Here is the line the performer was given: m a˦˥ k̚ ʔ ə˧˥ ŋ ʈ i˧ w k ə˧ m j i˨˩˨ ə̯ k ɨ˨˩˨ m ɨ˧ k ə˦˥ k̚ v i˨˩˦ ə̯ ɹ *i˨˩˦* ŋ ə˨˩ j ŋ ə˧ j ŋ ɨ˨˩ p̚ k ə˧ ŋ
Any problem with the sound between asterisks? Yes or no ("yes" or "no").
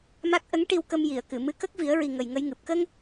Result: yes